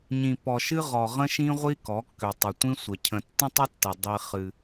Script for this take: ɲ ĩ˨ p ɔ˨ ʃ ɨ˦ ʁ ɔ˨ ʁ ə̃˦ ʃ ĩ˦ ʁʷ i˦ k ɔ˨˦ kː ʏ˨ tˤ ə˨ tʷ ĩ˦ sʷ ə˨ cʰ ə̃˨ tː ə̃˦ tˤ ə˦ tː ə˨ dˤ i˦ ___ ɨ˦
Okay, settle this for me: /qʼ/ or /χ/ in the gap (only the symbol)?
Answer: χ